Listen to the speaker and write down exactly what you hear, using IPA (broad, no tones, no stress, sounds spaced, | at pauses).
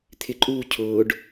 t̪ʰ ɪ ǃʼ uː cʰ ʊː ɖ